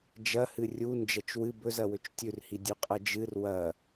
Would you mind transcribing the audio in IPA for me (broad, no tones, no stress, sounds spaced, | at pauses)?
d͡ʒ ɐ h ɨ rʲ u n d͡ʒ ɐ t͡ʃ w ɨ b ɵ z ɐ w ɵ t͡ʃ tʲ ʉ r h i dʲ ʉ qʼ ɐ d͡ʒ ɨ r w ɐ